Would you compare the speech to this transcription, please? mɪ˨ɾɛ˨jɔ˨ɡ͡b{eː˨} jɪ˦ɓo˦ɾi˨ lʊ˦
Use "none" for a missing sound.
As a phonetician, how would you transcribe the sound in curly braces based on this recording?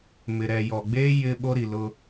eː˦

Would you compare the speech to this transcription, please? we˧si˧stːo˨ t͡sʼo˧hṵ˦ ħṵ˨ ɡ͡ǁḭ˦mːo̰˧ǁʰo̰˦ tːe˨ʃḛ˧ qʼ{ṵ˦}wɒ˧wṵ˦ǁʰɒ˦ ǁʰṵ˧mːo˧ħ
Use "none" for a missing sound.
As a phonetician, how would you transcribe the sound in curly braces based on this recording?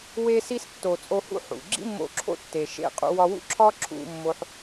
ṵ˧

